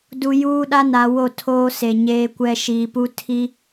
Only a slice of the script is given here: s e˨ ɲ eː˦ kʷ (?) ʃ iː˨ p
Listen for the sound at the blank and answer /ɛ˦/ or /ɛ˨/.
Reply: ɛ˦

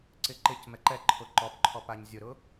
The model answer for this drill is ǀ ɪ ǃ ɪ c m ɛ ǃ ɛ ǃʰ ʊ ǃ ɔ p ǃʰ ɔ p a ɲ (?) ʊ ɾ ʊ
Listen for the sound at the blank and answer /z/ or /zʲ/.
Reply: zʲ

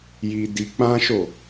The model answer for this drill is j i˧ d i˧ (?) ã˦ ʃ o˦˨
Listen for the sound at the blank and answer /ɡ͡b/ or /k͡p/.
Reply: k͡p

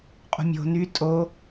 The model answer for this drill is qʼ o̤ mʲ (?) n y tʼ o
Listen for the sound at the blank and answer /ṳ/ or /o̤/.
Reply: o̤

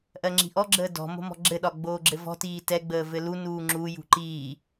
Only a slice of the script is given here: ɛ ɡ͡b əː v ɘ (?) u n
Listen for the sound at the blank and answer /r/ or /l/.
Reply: l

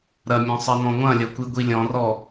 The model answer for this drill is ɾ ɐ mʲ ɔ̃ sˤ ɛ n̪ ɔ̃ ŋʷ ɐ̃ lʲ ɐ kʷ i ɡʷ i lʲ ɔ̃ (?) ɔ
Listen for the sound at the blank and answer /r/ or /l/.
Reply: r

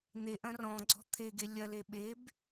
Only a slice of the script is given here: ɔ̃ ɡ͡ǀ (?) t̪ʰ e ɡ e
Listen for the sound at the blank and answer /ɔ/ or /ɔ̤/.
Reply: ɔ̤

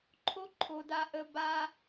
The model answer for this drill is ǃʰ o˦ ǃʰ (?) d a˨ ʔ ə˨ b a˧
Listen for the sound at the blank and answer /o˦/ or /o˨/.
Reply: o˨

